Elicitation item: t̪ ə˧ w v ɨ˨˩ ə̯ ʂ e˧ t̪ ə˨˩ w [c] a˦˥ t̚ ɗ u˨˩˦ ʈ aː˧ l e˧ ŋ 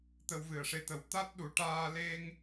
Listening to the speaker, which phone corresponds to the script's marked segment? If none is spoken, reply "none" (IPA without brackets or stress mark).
t̪